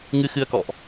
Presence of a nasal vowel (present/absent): absent